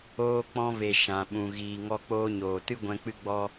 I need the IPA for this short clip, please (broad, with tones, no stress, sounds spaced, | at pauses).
oː˧ k͡p ɔ̃˧ v e˨ ʃ ã˨ ɓ ũ˨ ɣ iː˨ ŋ ɔ˧ k͡p oː˧ ɲ oː˨ t ɨ˦ ɡʷ ɛ̃˧ k͡p ɨ˦ ɡ͡b ɔ˦